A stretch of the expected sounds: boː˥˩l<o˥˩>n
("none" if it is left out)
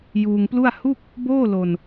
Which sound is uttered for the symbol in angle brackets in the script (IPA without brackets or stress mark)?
o˧